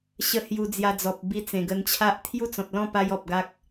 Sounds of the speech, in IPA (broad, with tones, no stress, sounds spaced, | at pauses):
ɕ ə˧ h j u˧ d͡z j a˧ d͡z ɔ˨ p̚ b i˧ t͡s ẽ˨˩ ɡ ə˧ n t͡ɕʰ a˦ ʔ t̪ʰ j u˥˧ t͡s ɔ̃˨ t̚ l ɔ̃˥˧ p a˧ j ɔ˨ p̚ ɡ a˦ k̚